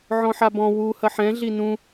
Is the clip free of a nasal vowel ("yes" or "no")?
no